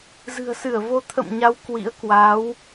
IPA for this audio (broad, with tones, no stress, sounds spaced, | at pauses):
z ɨ̤˨˩ ə̯ s ɨ˧˩ ə̯ v o˧ t̪ʰ ə̰˧˨ m ɲ a˨˦ w k w ḭ˧˥ ə̯ k w a˨˦ w